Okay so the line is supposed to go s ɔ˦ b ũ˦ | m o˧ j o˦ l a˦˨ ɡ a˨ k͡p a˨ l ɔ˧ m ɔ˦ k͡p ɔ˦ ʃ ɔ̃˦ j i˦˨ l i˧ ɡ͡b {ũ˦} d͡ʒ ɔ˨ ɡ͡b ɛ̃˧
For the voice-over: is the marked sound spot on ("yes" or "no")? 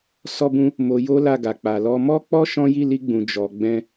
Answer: no